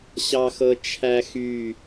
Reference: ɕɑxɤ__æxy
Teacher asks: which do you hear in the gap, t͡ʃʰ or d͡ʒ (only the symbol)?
t͡ʃʰ